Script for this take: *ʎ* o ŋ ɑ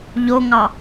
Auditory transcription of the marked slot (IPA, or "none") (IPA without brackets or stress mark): ʎ